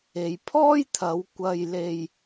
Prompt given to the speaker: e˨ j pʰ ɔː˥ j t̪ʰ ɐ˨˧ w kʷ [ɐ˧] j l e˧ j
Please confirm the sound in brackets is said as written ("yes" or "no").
yes